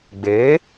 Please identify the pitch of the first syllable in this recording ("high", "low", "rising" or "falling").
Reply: rising